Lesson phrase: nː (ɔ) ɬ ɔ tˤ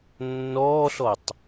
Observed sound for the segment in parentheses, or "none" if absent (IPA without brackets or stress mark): ɔː